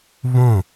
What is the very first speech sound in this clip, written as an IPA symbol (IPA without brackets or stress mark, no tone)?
β